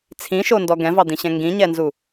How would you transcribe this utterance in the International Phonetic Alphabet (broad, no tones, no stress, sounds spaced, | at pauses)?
t͡sʰ ĩ ʃ o n d ɔ ɡ ɛ̃ v ɑ d̪ ĩ ɕ ɛ̃ ŋ ɡ ĩ ɲ ɛ n z u